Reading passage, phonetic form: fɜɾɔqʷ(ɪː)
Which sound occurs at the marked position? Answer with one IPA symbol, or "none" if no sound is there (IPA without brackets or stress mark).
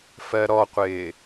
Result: ɪː